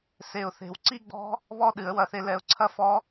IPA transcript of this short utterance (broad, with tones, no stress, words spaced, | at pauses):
se˨˩ʊ̯θe̤˨˩wǀi˥˧ɡ͡bɔ̤˦˥ | βɔ˥˧ɗɨ˨˩˦ə̯wɐ˩˥θe˧ lɛ˧ʊ̯ ǀʰɐ˥˧fɔ˦˥